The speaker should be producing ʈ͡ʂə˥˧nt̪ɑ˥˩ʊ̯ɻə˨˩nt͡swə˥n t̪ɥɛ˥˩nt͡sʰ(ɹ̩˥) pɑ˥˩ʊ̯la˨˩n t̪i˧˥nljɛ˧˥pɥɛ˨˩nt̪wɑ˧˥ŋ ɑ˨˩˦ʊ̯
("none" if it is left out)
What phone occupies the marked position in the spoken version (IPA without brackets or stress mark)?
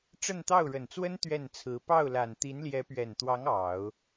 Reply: ɹ̩˧˥